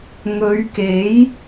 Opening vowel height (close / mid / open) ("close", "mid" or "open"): mid